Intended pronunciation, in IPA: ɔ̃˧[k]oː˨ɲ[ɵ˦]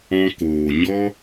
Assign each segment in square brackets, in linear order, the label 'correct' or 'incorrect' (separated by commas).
correct, incorrect